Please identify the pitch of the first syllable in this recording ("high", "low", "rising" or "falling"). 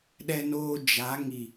low